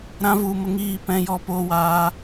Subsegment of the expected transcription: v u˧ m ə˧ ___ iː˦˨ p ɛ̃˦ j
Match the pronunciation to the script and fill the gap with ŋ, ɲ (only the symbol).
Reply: ŋ